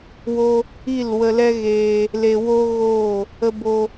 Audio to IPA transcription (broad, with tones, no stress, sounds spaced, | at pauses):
w o˧ | i˦˨ l w ə˧ l ɛ˦ ɣ eː˧ | l e˧ w o˦ ɣ oː˦˨ | ə˧ b o˧